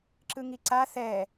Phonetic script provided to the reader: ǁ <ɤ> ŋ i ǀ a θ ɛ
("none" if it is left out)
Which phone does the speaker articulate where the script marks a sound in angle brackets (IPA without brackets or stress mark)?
ɯ